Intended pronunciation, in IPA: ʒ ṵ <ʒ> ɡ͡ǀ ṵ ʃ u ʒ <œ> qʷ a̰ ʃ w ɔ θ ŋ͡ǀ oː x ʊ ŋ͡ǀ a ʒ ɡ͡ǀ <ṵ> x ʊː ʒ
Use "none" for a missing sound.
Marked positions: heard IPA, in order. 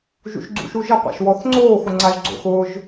ʃ, ə, o̰

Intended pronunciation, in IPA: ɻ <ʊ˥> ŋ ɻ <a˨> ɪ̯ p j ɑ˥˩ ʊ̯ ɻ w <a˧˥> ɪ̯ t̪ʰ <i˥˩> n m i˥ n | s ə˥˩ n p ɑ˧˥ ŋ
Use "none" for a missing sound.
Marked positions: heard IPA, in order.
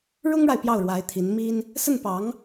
ʊ˥, a˨, a˧˥, i˧˥

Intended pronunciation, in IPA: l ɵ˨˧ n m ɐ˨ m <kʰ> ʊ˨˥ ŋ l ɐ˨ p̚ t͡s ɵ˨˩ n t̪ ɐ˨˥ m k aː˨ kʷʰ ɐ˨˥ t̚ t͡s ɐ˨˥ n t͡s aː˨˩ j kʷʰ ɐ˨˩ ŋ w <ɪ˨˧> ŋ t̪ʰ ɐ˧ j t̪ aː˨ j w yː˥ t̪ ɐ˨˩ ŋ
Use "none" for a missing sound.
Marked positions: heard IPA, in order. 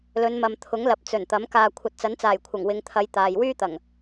t̪ʰ, ɪ˨˧

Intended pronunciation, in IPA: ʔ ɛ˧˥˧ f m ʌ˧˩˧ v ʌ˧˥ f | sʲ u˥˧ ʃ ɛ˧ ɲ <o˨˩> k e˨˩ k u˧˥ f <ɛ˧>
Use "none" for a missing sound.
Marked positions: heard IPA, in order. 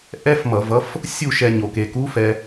o˨˩, ɛ˧

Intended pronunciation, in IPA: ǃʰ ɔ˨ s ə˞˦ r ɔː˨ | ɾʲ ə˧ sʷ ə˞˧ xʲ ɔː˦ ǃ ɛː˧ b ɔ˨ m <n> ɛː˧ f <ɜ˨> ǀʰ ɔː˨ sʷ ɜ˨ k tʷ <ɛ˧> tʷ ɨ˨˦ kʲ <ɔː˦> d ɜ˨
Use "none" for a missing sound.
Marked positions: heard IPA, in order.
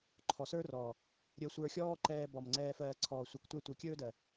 ŋ͡ǀ, ɜː˨, ɛ˧, ɵː˦

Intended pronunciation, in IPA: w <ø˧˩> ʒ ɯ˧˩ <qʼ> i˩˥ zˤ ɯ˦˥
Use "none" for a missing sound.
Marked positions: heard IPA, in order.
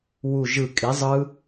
u˧˩, kʼ

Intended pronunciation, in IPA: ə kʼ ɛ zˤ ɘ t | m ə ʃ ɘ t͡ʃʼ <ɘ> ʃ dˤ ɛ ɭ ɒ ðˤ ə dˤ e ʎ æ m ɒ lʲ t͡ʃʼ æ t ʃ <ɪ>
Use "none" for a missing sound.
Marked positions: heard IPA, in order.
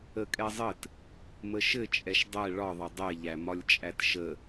ɛ, ə

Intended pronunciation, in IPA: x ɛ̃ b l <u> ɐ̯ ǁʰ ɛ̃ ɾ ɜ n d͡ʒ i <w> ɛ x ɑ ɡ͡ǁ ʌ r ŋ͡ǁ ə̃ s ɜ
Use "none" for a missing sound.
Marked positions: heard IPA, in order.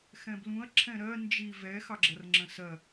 ũ, v

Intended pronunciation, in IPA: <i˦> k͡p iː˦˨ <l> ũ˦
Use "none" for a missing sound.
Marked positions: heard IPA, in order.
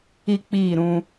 i˦, ɾ

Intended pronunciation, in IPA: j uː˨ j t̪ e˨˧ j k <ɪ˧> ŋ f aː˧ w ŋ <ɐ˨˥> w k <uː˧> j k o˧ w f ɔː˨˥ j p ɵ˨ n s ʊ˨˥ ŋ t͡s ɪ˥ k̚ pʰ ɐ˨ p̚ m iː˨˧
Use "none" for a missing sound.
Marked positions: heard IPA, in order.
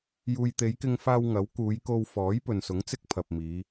ɪ˧, ɐ˨˥, uː˨˧

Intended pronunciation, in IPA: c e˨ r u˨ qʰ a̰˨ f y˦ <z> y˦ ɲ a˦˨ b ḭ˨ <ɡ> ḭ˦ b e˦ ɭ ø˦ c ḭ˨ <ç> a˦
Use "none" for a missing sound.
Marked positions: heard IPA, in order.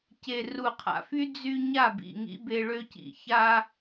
d͡z, ŋ, ç

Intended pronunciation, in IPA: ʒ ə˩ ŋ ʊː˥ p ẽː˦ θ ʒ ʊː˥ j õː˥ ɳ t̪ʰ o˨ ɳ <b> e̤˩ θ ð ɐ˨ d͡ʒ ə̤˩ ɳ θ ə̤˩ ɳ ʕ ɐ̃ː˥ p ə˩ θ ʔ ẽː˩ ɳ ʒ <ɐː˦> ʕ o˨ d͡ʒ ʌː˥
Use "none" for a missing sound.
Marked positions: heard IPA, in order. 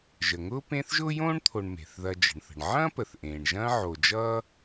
m, ɐ̃ː˦

